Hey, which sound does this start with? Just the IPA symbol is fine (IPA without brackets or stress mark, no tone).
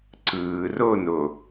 ǀ